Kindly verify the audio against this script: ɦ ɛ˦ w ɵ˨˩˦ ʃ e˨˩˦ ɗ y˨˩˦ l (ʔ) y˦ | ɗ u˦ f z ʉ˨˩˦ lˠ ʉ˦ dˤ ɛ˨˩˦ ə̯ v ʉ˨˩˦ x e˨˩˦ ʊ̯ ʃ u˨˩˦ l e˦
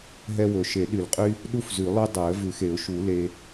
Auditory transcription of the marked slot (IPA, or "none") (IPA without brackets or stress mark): qʼ